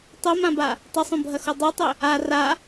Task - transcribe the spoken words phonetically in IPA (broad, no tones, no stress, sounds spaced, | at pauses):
tˤ o m ã b a | tˤ ɐ sˤ õ bʱ ɐ x o dˤ e tˤ ɵ | a r a